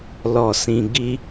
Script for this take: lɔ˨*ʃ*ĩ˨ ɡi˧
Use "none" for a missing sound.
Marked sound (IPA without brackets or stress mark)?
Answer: s